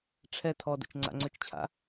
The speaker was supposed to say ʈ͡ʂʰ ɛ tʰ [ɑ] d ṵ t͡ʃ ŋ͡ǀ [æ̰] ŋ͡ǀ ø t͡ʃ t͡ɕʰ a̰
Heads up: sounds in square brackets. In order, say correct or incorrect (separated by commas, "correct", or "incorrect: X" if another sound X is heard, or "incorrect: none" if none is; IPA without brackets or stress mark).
incorrect: ɔ, incorrect: a̰